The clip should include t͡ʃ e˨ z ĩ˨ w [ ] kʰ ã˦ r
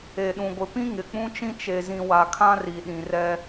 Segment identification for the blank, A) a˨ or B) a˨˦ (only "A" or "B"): A